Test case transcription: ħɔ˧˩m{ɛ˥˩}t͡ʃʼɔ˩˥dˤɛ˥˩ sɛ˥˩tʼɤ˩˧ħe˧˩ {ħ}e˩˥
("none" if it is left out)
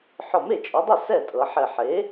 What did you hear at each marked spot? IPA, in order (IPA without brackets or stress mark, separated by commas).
e˥˩, ħ